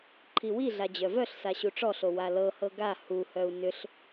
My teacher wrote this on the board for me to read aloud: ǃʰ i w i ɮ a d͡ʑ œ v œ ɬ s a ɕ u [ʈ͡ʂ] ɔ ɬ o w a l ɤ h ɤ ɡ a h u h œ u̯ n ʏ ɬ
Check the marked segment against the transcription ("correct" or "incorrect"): correct